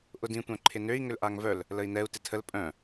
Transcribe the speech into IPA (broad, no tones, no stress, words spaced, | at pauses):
ʔʊdĩ tʷœ̃ǃʰɪnøi̯ ŋʏlʔaŋvœl | ləi̯nɛu̯ tɪtʰəl pʼœ̃